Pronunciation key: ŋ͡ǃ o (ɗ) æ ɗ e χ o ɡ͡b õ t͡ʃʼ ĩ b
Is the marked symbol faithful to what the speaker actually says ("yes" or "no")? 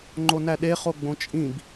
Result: no